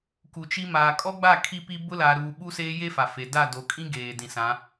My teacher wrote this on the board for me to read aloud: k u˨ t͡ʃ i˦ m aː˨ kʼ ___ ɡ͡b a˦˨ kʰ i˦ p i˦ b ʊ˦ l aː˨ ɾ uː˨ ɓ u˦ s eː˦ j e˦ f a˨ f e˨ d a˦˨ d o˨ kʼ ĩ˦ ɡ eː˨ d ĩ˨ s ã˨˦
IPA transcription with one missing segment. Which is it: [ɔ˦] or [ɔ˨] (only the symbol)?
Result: ɔ˦